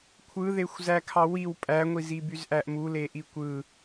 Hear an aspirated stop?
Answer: yes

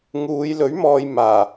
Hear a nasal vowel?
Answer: no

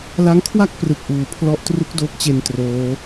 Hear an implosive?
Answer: no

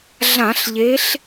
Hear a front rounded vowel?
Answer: no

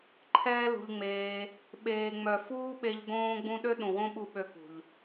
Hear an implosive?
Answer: yes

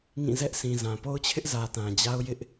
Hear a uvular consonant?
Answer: no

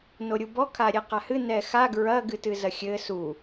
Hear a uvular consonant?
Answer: yes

